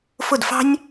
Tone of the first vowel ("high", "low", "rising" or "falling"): falling